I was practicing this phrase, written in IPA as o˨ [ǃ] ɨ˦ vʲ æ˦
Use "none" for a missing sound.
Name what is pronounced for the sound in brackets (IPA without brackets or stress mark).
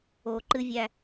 ǃ